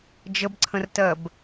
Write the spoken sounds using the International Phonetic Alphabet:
d͡ʒ ə b ǀʰ ə̃ r t ɜ b

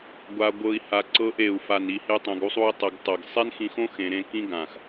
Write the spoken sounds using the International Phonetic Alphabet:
ɡʷ a˧ ɡʷ ɤ˧ i̯ h a˧ ǀ ɤ˧ ʔ e˨ u̯ f a˨ n i˧ h e˦ tˤ ɛ̃˧ ɡ u˦ sˤ u˦ i̯ tˤ ɛ˧ ɡ tˤ ɤ˨ ɡ sˤ e˦ n x ĩ˧ x õ˦ x ẽ˧ ɾ ẽ˦ k ĩ˦ ɡ ã˨ x

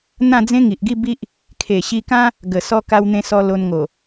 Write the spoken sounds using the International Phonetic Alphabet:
n̪ ã˥˧ d͡z ẽ˦ ŋ i˨ ʔ ɡ i˥˧ b i˦ ʔ | kʰ e˨˩ ɕ i˧ k ã˦ | ɡ ə˨˩ s ɔ˧ k a˧ w n̪ ẽ˧ s ɔ˧ l o˧ n ŋ o˨˩

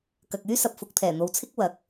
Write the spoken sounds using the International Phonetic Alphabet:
k ɐ˨ k̚ yː˥ s ɐ˨ p̚ f ʊ˨ k̚ t̪ʰ ɛː˨˩ n̪ o˨ w t͡sʰ ɪ˥ k̚ w ɐ˨˥ k̚

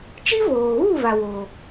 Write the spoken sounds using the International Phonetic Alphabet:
t͡ʃ i˦ v oː˨ ɣ u˦˨ v a˨ w o˨

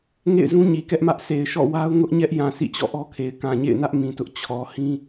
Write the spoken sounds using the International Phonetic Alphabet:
ŋ ḛ˦˨ ɪ̯ z ũ˦ ɲ i˨ k ɛ˦ ʔ m ä˦ ʔ sʰ e˨ ɪ̯ ʃ ɔ̰˦˨ w a˦ ʊ̯ ŋ ʊ˦ ʔ ɲ ɛ˦ ʔ j ã˨ s ḭ˦˨ t͡ɕ ɔ̰˦˨ ʔ ɔ˦ kʰ e˨ ɪ̯ k ã˨ ɲ ḛ˦˨ ɪ̯ n ä˦ ʔ m ĩ˨ t ʊ˦ ʔ t͡ɕʰ ɔ˨ h ĩ˦

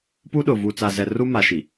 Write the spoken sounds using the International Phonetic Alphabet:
p u˦ ɗ ʊ˨ v u˨ t͡s a˨ z ɛ˨ r u˦ m a˨ ʃ i˨

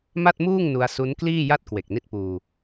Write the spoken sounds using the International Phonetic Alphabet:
m a˥˩ t̚ m uː˥˩ ŋ n u˧ a̯ s u˦˥ n k l iː˥˩ j a˥˩ t̚ k w e˨˩ k̚ n i˦˥ t̚ p uː˧

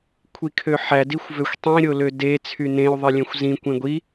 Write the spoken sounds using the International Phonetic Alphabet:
kʷʰ i kʰ ø ħ æ d i xʷ v ø xʷ tˤ ĩ ɾʲ o l ø d e t͡sʰ y n ẽ y̯ ðˤ i lʲ ẽ xʷ z ĩ kʷ ẽ ɡʷ i

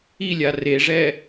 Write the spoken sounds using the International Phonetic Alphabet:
i lʲ a r e ʐ ɛ

